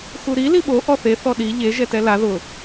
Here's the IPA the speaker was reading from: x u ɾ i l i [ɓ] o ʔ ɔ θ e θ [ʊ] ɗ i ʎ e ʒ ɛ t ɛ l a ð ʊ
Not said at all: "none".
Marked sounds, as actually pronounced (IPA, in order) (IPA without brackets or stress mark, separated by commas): ɓ, ɔ